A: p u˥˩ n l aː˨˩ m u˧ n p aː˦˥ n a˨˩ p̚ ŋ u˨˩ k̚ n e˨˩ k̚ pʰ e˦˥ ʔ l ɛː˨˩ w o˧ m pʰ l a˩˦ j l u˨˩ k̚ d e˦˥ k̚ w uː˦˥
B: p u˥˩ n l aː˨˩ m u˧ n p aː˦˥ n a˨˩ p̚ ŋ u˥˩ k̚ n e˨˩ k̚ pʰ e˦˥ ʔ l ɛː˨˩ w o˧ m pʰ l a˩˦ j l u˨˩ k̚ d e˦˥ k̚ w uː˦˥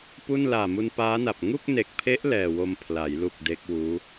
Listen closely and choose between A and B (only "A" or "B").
B